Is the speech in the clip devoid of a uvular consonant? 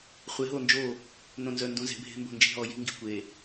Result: no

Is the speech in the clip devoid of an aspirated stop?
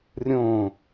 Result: yes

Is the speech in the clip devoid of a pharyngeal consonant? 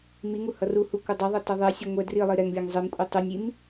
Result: yes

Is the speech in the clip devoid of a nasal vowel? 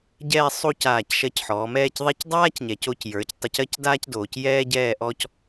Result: yes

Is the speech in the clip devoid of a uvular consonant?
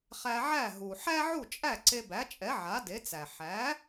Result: no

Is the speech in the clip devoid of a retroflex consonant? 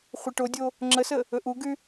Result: no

